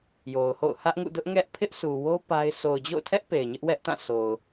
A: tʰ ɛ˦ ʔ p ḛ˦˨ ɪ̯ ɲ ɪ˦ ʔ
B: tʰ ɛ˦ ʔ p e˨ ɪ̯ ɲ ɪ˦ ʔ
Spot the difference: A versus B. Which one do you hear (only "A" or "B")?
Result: B